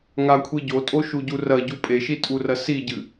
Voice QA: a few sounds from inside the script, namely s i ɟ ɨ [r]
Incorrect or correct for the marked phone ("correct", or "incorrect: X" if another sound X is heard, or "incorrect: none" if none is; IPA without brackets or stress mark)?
incorrect: none